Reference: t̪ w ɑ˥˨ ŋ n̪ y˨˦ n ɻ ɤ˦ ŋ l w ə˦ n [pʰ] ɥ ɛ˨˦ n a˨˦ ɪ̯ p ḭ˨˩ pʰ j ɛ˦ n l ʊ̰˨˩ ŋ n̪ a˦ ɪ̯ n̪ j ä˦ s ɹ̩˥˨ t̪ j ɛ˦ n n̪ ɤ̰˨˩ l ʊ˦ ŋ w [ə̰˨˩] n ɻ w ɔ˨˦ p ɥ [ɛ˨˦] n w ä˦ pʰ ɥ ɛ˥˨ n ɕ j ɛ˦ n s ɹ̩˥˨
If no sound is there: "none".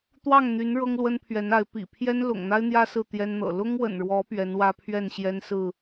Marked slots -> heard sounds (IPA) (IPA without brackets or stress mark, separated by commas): pʰ, ə̰˨˩, ɛ˨˦